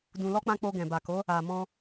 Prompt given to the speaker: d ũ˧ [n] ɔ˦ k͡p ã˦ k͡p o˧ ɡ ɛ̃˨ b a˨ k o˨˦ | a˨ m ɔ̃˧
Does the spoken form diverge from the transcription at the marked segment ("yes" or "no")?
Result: yes